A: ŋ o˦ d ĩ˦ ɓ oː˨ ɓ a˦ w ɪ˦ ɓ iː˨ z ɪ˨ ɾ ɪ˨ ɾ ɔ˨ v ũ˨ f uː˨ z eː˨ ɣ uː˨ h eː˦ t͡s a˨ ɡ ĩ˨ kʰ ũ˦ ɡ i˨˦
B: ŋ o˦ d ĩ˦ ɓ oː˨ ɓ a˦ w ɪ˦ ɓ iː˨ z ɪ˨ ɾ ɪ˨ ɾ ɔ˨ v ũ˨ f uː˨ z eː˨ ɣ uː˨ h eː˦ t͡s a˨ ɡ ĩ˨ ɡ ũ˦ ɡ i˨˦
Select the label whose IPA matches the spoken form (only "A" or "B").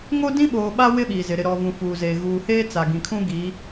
A